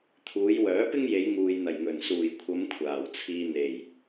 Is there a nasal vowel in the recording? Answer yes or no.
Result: no